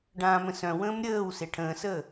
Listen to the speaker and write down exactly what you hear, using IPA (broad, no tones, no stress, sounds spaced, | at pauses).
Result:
ɖ ãː m ə̃ s œ̃ w ə̃ː m ɾʲ əː w s e ʈʰ ə̃ː s əː